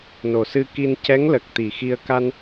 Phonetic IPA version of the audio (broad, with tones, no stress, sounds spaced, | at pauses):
n o˨˩ s ɨ˧ k i˧ n c ɛ˧˥ ŋ l ə˨˩ k̚ t̪ i˨˩ x i˧ ə̯ k a˧ n